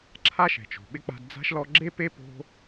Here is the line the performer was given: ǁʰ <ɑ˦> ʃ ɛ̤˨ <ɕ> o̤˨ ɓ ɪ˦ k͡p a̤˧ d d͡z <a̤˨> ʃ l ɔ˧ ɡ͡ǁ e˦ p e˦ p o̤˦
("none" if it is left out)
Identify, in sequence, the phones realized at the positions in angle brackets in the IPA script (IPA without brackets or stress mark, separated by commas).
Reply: a˦, t͡ʃ, a̤˦